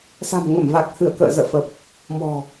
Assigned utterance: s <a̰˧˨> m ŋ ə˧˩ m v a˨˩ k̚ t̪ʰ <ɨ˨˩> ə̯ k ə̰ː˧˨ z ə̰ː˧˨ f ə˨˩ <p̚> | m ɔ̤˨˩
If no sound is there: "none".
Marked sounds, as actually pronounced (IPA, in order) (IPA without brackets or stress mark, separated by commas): a̤˨˩, ɨ˧˩, p̚